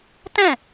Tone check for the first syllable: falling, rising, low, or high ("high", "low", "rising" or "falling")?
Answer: falling